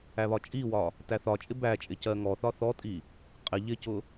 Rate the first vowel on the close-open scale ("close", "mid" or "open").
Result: open